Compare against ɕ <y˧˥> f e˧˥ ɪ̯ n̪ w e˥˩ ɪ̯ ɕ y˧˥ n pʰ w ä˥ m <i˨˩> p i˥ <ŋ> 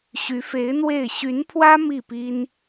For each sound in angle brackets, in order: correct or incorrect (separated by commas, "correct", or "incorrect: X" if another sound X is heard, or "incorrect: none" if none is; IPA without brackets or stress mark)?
correct, incorrect: i˥˩, incorrect: n